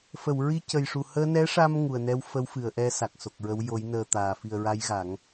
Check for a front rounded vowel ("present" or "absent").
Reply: absent